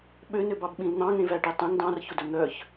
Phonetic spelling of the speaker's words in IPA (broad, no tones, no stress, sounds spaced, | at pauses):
ɓ ø n ø b ɑ b ɓ ĩ l n̪ ɑ̃ ŋ ẽ v æ ʈ i tˤ ɛ̃ ŋ d ɑ̃ r ç ɵ d ɵ n̪ œ ç